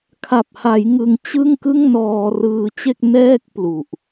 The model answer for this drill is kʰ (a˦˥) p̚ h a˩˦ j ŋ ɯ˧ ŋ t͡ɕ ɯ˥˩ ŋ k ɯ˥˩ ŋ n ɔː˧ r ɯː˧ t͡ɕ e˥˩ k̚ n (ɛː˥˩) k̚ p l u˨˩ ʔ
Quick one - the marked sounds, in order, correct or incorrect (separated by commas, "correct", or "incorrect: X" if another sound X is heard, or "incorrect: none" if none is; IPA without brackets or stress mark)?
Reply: incorrect: a˨˩, correct